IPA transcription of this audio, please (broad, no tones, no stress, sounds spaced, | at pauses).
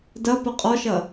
d ɐ p ə qʼ ɔ ʃ ɐ